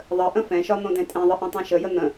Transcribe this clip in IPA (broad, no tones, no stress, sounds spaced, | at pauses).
ðˤ ə ʔ ə̃ f ɛ̃ ʃ ɒ n̪ õ d ɛ̃ tʼ ẽ ðˤ ɘ ʔ ɛ̃ tˤ ẽ ʃ ə j ə n̪ ə̃